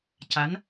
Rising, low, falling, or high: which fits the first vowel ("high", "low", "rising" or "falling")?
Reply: rising